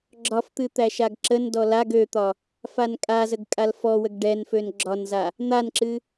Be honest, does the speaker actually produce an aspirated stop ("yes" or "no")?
no